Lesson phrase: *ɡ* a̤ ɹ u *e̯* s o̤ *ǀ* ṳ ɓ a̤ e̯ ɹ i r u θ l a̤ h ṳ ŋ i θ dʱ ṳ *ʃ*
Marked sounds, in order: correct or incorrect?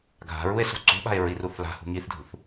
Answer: incorrect: ɡʱ, correct, correct, incorrect: θ

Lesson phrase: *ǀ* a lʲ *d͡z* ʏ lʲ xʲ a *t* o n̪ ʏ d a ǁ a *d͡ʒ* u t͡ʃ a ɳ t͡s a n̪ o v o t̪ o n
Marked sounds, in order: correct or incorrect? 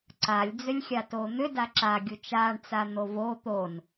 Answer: correct, correct, correct, incorrect: ɡʲ

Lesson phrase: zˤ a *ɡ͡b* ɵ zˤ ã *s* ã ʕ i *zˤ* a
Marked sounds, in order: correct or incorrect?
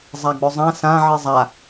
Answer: correct, correct, correct

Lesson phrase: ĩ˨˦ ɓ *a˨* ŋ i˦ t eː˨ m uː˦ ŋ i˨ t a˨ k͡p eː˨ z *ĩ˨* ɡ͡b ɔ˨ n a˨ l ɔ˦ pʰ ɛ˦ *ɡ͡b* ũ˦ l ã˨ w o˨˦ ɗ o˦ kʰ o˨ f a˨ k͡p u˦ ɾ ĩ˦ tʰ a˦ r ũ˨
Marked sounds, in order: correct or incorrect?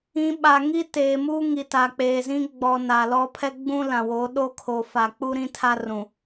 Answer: correct, incorrect: ĩ˦, correct

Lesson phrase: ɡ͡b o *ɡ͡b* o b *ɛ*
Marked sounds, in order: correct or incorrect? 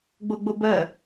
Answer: correct, incorrect: ɜ

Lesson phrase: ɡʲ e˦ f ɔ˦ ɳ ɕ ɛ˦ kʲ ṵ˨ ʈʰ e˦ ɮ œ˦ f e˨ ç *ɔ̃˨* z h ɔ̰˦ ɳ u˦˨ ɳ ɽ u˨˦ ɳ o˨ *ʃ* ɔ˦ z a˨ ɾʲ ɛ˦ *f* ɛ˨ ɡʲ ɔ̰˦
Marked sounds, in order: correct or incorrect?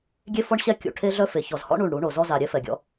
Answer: incorrect: ɔ˨, incorrect: z, correct

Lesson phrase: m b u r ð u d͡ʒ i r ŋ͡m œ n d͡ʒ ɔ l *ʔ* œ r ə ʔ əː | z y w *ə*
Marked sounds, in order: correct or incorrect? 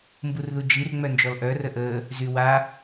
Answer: correct, incorrect: a

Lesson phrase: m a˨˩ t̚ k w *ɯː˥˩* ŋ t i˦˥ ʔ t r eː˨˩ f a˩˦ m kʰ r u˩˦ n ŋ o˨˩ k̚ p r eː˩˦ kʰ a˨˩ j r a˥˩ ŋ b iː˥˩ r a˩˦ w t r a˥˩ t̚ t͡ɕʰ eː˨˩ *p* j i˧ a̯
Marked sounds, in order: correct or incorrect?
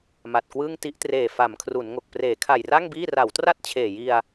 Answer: correct, incorrect: none

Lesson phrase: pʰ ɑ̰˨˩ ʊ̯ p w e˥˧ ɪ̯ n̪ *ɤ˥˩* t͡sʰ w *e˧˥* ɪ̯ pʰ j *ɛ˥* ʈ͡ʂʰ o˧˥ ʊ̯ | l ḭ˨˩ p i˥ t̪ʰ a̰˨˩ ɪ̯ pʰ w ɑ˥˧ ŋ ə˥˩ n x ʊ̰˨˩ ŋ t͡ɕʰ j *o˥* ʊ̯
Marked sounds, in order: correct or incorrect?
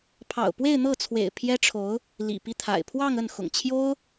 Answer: correct, incorrect: ḛ˨˩, correct, correct

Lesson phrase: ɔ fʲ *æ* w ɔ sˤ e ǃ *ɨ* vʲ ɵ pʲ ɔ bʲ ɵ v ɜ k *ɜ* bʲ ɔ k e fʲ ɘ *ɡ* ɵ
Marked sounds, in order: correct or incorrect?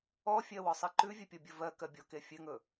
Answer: incorrect: ɜ, incorrect: ʉ, correct, incorrect: ŋ

